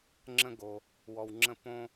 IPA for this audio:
ŋ͡ǁə̃˥ ɡo˧ | wɔ˧wŋ͡ǁə̃˥˧ põ˥

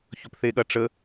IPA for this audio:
çɵpθeɠɐʈ͡ʂə

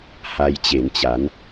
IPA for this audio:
ha˧jt͡ɕe˩˦nt͡ɕa˩˦n

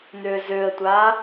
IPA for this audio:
n̪øzøə̯tʷa

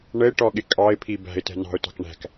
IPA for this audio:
ɳəɪ̯ʈɔɠɪ kʼɑɪ̯pʰi bæ̤ɪ̯tɛ̤ nɑ̤ʊ̯tɑ̤k ɳæ̤k

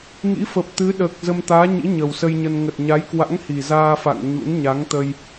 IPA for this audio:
ŋḭ˧˥fə˨˩p̚t̪ɨ˨˦ ɗəː˨˩k̚ zə˧m t̪aː˨˦ɲḭ˧˥ ɲə˨˩wsə˧jɲə˧n ŋə˨˩t̚ɲa˨˦jkwa̰˧˥ŋ hi˨˩zaː˧fa̰˧˨ŋ ɲṵ˧˥n ɲa˨˦ŋt̪ə˧j

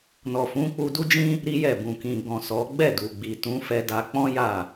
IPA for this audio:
nɔ˨fũ˨˦k͡pu˧ du˦d͡ʒĩ˦ | ɾi˦jɛ˦˨ bũ˨kĩ˨ɡɔ̃˨ sɔ˨˦ ɡ͡bɛ˦˨du˨ ɡ͡bi˨ tũ˨˦fɛ˧da˧ k͡pɔ̃˦ja˦˨

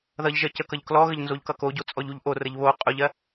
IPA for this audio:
ðʌʎʒɜ cəkʌʎ klɔɣəʎ nzoʎkʌkoɟo t͡sʼɔʎuʎʔorəʎ βo qʼʊʎɜ

